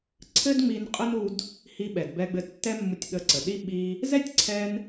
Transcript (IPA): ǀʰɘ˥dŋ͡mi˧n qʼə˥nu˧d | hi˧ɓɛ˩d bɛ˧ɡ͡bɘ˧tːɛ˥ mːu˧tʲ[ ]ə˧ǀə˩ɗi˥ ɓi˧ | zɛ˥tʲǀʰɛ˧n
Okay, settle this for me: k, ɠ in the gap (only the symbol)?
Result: ɠ